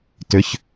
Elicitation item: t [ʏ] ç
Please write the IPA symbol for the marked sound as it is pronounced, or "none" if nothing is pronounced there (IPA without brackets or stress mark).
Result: ʏ